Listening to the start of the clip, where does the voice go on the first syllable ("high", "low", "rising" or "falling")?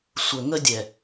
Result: low